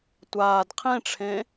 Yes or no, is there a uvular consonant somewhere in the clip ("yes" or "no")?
yes